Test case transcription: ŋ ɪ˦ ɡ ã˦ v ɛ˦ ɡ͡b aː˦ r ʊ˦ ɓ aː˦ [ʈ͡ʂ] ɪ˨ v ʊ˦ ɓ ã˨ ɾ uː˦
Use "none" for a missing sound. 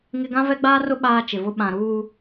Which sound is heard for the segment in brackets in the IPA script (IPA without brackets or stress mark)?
t͡ʃ